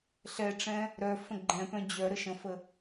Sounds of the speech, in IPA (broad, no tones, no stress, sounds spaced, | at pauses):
ɬ ɛ ʈ͡ʂ ɛ̃ | ɾ œ f ə̃ ɡ͡ǃ ɛ̃ p œ̃ d͡ʑ œ ɾ ə ʃ ə̃ f ə